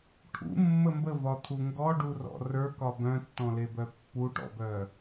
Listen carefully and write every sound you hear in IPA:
ʈʰ ṵ mː ə m b ə v ɒ t̪ʰ u ŋ ɡ ɔ ɖ u r ɔ̰ r ə˞ k ɒ b œ̃ tː ɔ̃ l e b œ pː u ʈ ɔ̰ b œ

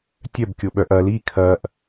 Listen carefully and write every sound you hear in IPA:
tʲ œ b kʲ o ɓ œ ʔ ɐ l i kʰ ɐ ʔ

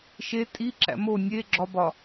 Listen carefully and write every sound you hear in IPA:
ʃ e tʼ i ǁ æ̰ m o nʲ e ɡ͡ǁ ɒ b ɒ

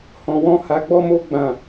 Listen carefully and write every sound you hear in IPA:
h ɔ̃˧ w ɔ̃˦ h a˧ ɡ͡b ɔ˦ m o˦ ɡ͡b ã˦˨

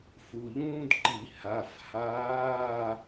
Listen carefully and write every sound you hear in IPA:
f u˩˧˩ ʎ ũː˥ d ǃ i˧˩˧ h a˩˧˩ f h aː˧˥˧

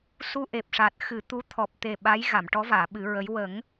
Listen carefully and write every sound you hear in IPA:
s u˧ ʔ e˨˩ p̚ ʂ aː˨˩ t̚ x ɨ˨˩˦ t̪ u˧˥ t̪ʰ ɔ˨˩ p̚ t̪ e˨˩ ɓ a˧˥ j ɣ a˨˩˨ m ʈ ɔ˧˥ v aː˨˩˨ ɓ ɨ˨˩˦ ɹ ə˧˥ j w ə˨˩˦ ŋ

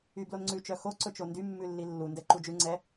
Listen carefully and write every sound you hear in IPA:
y b l o n ŋ͡ǀ ʉ t͡ʃ œ x o ǀ ɵ t͡ʃ o n d y mː ʉ lː i lː u n d ɛ ǃ u d͡ʒ ʉ ŋ͡ǀ ɛ

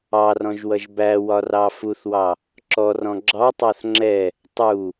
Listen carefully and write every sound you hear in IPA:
ɑ r ɔ̃ ʒ w ʌ ʒ b æ w ɒ r ɑ f u θ w ɑ | ǁ ɔ r ɔ̃ ɡ͡ǁ ɑ tˤ ɑ θ ŋ͡ǁ ɛ | tˤ u

